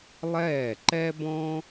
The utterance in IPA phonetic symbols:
lˠ ɛː˥˩ ǃ ɛ˥ b ɔ̃˥

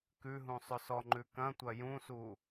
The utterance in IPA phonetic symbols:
k ʉ ɦ ũ sˤ ʏ s ɔ ŋ͡ǃ ʉ k ɐ̃ tʷ ɐ j ũ s u

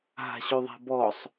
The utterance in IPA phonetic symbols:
ɦ a̤ ɕ ø ðˤ a̤ b ɔ sˤ

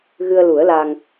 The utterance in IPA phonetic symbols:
ɣ ɨ˧ ə̯ l u˨˩˦ ə̯ l a˧ ŋ

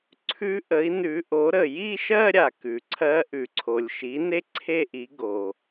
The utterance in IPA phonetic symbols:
ǀʰ ʉ˧˥ ʔ ə˩˥ i̯ n ʉ˩˥ ʔ o˩˥ ɾ ə˩ j i˥˧ ʃ ɜ˥˧ ɾʲ a˩ k ʉ˩ ǀʰ ɜ˧˥ ʔ ʉ˩ ǀʰ o˩ lʲ ʃ i˩˥ n e˥ ǀʰ e˥˧ ʔ i˩˥ ɡ o˩

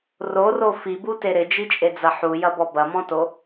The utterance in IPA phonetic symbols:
r o r o f i b u t e ɾ ɪ d͡ʒ i t͡ʃʼ e d͡z ɐ ħ u j ɐ b ɔ b ɐ m ɔ̃ t o

